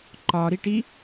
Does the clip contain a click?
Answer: yes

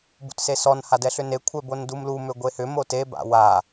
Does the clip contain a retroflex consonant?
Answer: no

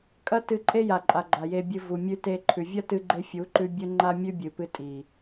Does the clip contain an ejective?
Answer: yes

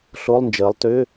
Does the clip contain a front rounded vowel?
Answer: yes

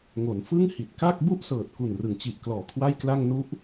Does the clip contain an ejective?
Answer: no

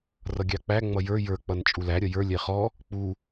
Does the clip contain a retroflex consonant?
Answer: no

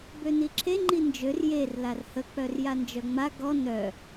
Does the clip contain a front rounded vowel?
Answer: yes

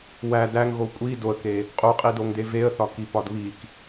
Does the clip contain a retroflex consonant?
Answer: no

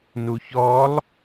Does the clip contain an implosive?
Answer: no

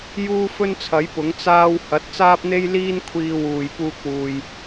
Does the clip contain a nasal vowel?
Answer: no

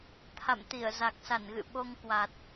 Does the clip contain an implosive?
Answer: yes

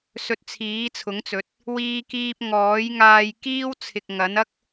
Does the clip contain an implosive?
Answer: no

